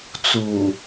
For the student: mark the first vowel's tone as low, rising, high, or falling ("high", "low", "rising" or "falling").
low